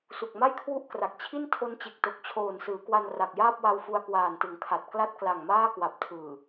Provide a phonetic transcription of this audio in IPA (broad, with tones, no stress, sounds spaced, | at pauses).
s u˨˩ k̚ m a˥˩ j kʰ w u˥˩ ʔ k r a˨˩ k̚ t͡ɕʰ i˥˩ n tʰ o˦˥ n t͡ɕ e˨˩ k̚ t o˨˩ k̚ t͡ɕʰ oː˨˩ n s ɯː˩˦ k w a˧ n r a˨˩ k̚ j aː˥˩ p̚ w a˧ w f u˧ a̯ k w aː˨˩ n t ɯ˩˦ ŋ kʰ a˨˩ t̚ k l a˦˥ t̚ k l a˨˩ ŋ m aː˥˩ k w a˨˩ p̚ tʰ ɯː˨˩